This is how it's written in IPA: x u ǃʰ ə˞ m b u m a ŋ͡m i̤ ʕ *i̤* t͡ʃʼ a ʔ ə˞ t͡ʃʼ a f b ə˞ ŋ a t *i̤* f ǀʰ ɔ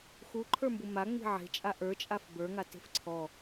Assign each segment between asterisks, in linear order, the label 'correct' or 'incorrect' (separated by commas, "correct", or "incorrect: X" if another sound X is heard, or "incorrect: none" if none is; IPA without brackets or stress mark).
incorrect: e̤, incorrect: e̤